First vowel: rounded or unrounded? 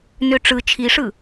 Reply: rounded